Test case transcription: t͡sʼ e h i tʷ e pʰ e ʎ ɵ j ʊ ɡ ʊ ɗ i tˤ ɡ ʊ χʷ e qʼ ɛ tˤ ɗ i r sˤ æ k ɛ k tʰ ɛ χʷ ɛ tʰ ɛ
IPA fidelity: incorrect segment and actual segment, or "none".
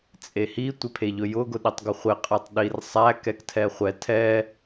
none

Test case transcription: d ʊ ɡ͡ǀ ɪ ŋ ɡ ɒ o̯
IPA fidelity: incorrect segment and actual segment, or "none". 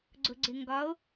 d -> ɡ͡ǀ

